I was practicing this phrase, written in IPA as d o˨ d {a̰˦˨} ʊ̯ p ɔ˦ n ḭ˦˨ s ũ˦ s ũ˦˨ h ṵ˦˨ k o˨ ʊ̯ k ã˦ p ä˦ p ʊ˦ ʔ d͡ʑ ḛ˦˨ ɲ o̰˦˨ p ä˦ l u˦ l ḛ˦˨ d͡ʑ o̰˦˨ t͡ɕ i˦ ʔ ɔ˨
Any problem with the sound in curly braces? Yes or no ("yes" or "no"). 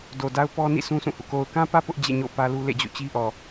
yes